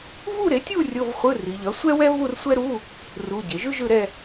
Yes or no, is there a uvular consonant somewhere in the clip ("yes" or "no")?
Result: yes